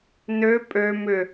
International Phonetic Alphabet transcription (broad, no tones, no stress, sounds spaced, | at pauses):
n ø pʼ ø m ʏ